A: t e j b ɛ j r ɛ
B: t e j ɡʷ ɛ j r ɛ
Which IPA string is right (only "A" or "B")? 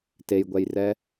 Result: B